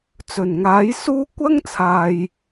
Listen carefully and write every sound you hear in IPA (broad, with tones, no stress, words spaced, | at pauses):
t͡sɵ˨˩nŋaː˨˥jsuː˥ kʷɐ˥ŋt͡sʰaː˨j